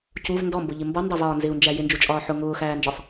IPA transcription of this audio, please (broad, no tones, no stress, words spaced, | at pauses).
cuv ndɔmbʊʎɪ mbɔndˤævɒː nzɪu̯nd͡ʒæ jɪnd͡ʒut͡ʃʼɒː ħʊ ŋʊːxæːnd͡ʒɒsˤ